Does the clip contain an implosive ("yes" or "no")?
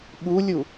yes